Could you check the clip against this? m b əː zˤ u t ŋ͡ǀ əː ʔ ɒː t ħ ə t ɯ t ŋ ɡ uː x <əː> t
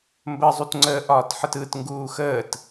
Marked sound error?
no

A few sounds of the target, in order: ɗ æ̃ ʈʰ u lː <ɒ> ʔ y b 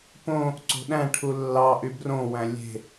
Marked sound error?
yes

